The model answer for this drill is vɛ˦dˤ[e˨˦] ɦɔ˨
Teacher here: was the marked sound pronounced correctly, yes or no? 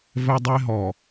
no